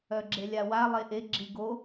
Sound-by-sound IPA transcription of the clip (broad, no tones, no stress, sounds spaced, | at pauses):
œ ɡ͡ǁ e lʲ a w a lˠ e ʔ e ɡ͡ǁ i ɡ o